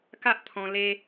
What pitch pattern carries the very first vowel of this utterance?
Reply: high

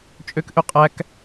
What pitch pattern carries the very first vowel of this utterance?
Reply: high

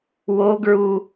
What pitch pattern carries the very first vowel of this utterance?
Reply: high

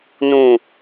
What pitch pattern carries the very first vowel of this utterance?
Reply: low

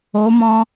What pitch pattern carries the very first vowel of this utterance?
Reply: rising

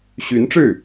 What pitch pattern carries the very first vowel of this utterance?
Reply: rising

